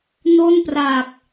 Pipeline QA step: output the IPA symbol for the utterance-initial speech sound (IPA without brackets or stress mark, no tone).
n